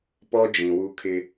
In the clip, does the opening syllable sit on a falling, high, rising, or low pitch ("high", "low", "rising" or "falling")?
high